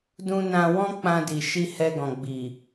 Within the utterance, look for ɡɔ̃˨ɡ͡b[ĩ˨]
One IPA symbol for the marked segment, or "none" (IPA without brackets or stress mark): i˨